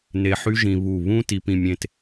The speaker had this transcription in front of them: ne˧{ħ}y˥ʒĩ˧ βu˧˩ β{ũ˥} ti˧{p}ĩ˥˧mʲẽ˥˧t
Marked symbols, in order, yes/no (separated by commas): yes, yes, yes